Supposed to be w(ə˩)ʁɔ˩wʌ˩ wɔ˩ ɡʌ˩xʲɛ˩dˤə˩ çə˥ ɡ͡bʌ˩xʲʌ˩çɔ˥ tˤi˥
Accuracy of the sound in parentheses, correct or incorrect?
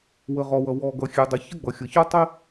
correct